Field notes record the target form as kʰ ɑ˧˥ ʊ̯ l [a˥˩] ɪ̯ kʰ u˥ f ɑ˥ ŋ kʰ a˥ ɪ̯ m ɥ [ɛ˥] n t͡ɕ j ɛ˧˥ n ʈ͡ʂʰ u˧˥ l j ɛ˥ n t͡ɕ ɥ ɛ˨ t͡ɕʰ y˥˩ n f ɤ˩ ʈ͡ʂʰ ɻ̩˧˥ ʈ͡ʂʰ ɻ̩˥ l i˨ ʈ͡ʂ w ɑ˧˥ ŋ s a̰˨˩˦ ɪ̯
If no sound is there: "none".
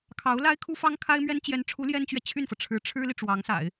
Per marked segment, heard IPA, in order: a˥, ɛ˥

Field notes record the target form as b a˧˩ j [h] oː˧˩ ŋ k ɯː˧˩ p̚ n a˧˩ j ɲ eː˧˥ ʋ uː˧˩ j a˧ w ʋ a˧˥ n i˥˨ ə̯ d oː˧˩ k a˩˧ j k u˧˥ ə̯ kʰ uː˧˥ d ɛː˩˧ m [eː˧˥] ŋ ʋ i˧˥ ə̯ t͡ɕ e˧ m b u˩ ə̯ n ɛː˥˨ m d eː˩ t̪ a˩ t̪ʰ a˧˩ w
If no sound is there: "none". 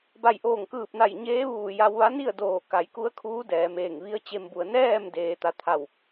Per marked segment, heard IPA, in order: ʔ, eː˧˩

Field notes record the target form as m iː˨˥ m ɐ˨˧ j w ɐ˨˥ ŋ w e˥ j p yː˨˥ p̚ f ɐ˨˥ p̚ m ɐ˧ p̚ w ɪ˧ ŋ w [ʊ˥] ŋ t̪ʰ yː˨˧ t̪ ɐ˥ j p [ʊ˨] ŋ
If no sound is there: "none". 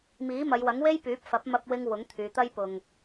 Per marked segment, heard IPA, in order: ʊ˨˥, ʊ˨

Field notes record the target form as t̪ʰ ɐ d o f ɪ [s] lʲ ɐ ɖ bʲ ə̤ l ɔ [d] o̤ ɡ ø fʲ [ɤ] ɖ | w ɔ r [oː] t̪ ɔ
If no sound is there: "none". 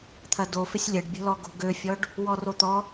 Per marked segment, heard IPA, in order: sʲ, ɡ, ɔ, o

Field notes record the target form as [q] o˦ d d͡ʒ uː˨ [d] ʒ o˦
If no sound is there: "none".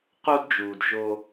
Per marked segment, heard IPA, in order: q, d

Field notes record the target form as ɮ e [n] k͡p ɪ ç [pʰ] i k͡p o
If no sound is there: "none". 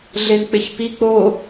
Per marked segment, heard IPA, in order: n, p

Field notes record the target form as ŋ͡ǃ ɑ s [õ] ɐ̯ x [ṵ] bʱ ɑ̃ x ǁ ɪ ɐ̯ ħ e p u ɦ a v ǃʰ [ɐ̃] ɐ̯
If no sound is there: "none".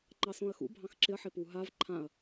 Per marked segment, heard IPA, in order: õ, ṵ, ã

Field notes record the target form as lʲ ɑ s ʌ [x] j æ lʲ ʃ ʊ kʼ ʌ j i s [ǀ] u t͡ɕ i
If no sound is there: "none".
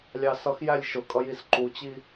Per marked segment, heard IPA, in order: x, ǃ

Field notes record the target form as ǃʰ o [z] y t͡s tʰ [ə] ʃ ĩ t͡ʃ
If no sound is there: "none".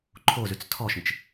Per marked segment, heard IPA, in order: z, ɔ

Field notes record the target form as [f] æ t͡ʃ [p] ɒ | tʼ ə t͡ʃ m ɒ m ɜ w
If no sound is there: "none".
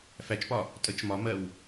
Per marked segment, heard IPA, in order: f, p

